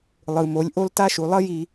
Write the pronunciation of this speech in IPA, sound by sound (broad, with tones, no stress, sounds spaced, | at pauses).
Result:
lˠ ɯ˨ m o˨˦ lʲ ʔ o˦ l t a˦ ʃ u˨ lˠ ʌ˦ j i˨